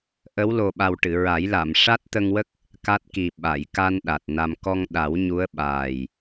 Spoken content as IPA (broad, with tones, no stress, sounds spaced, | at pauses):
ʔ ə˧˥ w l o˨˩ ɓ a˨˩ w ʈ ɨ˨˩˨ ɹ a˨˩˦ j l a˨˩˨ m ʂ a˦˥ t̚ t̪ ə˧ ŋ w ə˦˥ k̚ | k a˦˥ t̚ k i˨˩ ɓ a˨˩˨ j k a˧ n ɗ a˨˩ t̚ n a˧ m k ɔ˧ ŋ ɗ a˨˩˦ w ɲ u˧˥ ə̯ ɓ aː˨˩ j